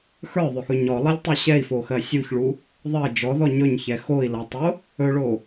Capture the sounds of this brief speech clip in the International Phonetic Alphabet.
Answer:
x ə˞ ðˤ ɵ x ɵ ɲ ɔ lˠ ɛ lʲ tˤ o ɕ ɛ i̯ f o x ɜ sʲ u ç ɭ u | ðˤ ɜ d͡ʒ ɔ ð ɔ ɲ ɵ ɲ ç ɛ x o i̯ l ɔ tˤ o | ɵ ɭ o

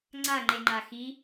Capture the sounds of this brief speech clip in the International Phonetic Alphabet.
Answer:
ŋ͡ǀ a ŋ͡ǃ e ŋ͡ǃ a x i

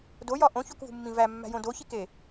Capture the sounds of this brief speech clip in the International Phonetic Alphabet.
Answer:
d o j ɒ ʔ õ ç o k v ṳ mː ĩ v æ mː æ̤ j õ d o ç i k e

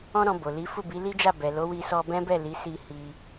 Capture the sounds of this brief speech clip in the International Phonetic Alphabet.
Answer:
ɔ̃˦ ɾ ɔ̃˧ b o˨ l i˨˦ f u˦˨ b i˨˦ l i˦ d͡ʒ a˦˨ b ɛ˨ l o˨˦ w i˧ s ɔ˧ b ɛ̃˦ b ɛ˦˨ l i˨˦ s i˧ h i˧

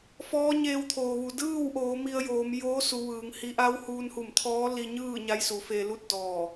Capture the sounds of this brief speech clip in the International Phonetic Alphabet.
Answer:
f ɔː˧˥ ɲ eː˧ w t̪ʰ oː˩ ʋ u˩ d ɯː˥˨ w ʔ oː˩˧ m i˧ ə̯ j oː˩˧ m j oː˧˥ s u˩˧ ʋ ɯː˩˧ ŋ h i˧˥ ʔ a˧˥ w h uː˧ n h u˧˩ m t̪ʰ ɔː˧˥ l i˧ ɲ ɯː˥˨ ɲ a˧˥ j s u˩˧ f eː˧ l u˥˨ t̚ d ɔː˧˩

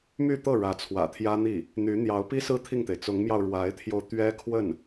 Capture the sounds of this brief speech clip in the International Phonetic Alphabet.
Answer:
m y˥˧ t̪ ɤ˥˩ ɻ ä˧˥ t͡sʰ w ä̰˨˩ t̪ʰ j ä˥ n̪ i˥˩ | n̪ y˧˥ n̪ j ɑ˧˥ ʊ̯ p i˥ s ɹ̩˥˧ t̪ʰ i˥˩ ŋ t̪ e˩ ɪ̯ t͡s ʊ˧˥ ŋ m j ɑ˧ ʊ̯ ɻ w a˧˥ ɪ̯ t̪ʰ j o˧ ʊ̯ t̪ ɥ ɛ˥ kʰ w ə˥˩ n

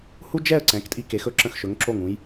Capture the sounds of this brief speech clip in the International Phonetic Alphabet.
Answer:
h u˥ d͡ʒ ɛ˥˧ ə̯ ǀ ɛ̃˩˧ k tʼ i˧ k e˩˧ x ɵ˧ ǁ ə̃˧˩ x ʃ ɵ˩˧ ŋ ǁ o˧˩ ŋ ũ˩˧ j

